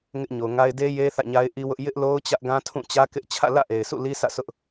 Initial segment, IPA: ŋ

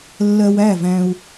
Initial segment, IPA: lː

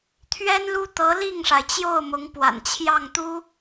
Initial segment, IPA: t̪ʰ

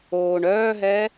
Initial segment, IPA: oː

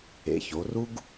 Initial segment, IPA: ḛ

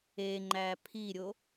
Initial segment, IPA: e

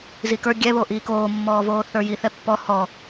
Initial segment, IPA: z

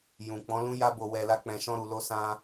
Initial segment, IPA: j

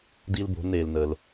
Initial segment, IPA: d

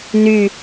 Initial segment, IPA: n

